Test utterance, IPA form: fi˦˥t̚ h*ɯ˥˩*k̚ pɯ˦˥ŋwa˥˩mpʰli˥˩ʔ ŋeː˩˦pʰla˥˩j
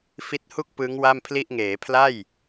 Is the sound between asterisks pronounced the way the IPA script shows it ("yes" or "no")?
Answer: no